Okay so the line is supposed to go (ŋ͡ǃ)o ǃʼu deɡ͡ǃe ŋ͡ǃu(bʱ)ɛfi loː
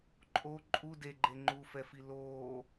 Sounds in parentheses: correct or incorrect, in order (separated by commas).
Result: incorrect, incorrect